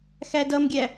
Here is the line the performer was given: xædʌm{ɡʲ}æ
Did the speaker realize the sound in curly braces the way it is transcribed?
yes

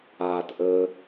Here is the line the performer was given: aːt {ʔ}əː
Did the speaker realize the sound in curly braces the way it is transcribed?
yes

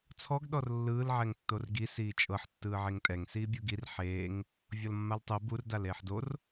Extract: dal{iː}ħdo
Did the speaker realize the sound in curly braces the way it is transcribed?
no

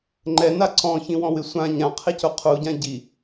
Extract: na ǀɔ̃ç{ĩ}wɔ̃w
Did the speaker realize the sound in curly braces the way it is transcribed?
yes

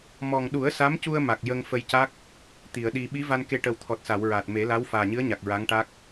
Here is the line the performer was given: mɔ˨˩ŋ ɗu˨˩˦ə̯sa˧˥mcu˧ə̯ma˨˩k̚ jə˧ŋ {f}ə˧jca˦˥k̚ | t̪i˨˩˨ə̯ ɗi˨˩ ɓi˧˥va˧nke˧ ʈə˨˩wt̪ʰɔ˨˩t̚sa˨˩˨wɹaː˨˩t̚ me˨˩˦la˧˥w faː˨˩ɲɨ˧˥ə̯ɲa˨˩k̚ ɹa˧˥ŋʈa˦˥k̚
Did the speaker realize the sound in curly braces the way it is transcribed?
yes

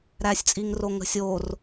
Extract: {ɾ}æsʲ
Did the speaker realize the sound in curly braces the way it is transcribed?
yes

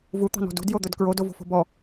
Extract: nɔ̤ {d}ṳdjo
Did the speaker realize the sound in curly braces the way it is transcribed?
yes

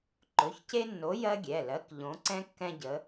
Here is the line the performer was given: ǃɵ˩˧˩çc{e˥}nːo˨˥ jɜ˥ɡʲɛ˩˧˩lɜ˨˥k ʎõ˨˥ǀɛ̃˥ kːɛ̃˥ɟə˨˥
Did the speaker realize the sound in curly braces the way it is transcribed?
yes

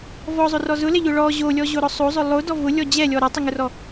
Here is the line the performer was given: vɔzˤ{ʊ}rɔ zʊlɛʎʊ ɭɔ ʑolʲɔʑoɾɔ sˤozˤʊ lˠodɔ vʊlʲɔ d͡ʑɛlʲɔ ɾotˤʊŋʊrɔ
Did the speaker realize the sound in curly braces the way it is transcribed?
yes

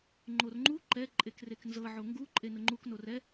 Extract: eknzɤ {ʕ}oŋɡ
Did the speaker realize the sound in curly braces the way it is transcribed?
yes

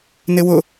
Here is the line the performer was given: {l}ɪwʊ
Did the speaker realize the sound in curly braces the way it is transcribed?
no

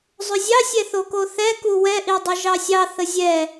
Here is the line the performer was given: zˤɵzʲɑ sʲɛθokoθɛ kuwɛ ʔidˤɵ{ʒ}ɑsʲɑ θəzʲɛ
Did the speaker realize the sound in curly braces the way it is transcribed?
yes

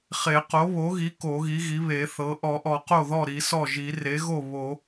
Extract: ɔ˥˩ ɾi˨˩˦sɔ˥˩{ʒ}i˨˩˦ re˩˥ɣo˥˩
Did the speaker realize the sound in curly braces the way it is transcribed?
yes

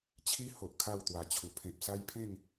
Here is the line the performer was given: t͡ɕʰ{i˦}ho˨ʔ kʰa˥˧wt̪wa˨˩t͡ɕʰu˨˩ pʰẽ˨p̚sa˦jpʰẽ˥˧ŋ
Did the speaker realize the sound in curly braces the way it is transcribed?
yes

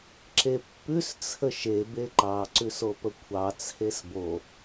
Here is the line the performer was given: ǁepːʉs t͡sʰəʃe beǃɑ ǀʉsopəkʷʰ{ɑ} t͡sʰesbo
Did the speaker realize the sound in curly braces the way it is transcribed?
yes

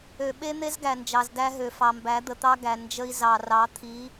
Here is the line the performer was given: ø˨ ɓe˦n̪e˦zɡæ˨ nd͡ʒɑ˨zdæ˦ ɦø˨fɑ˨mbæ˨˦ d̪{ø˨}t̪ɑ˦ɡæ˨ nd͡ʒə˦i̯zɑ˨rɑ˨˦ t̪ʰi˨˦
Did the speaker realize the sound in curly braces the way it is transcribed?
no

